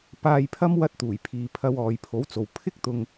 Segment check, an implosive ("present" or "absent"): absent